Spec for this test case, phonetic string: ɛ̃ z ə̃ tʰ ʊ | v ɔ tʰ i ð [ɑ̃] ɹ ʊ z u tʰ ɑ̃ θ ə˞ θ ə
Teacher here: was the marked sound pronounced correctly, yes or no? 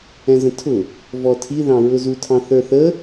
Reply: yes